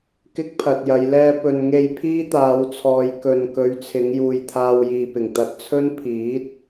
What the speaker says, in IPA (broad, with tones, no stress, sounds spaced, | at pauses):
k ɪ˥ k̚ pʰ ɐ˨ t̚ j ɐ˨˧ j l ɛː˧ p ɵ˨ n ŋ e˧ j pʰ iː˥ t̪ aː˨˧ w t͡sʰ ɔː˨ j k ɵ˨ n k ɵ˨˧ ɥ t͡sʰ ɪ˨˧ ŋ j uː˨ j t̪ʰ aː˧ w j iː˨ p ɪ˨˩ ŋ t̪ ɐ˧ t̚ t͡sʰ ɵ˥ n pʰ iː˨˥ t̚